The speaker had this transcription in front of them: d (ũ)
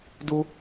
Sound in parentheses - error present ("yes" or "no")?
yes